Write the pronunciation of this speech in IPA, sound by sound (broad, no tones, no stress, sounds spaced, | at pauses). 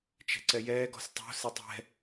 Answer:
t͡ʃ ɛ̤ ǀ ɛ j ɛː ɡ ɔ̤ s tˤ o̤ s e tˤ ɛ̤